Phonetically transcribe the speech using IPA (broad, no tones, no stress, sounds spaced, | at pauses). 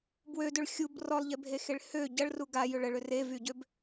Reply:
b w ø d ø ɭ xʲ u b r ɔ lˠ ʎ e bʱ e x e ɭ h ø ɟ ɐ ɭ r u ɡ a j ʏ ɭ ə ɭ ʏ r e v y ɟ ø b